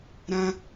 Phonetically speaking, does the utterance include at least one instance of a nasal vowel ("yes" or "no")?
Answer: yes